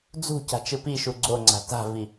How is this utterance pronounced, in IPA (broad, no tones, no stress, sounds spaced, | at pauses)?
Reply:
d͡z ṳ c a̤ t͡ʃ ɯ p i ʃ u ɡ͡ǀ o ŋ͡ǀ a̤ t a̤ v i